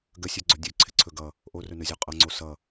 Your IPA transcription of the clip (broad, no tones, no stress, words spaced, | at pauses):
ɡəsʲʉɡ͡ǀɔ dʲʉǀʰɪǀʰɵ ɡʌ | ʔorɵnɵzʲɔ qʼʌŋ͡ǀo sʌ